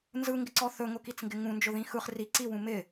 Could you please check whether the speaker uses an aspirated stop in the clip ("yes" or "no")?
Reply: no